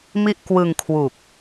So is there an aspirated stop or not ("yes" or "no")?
yes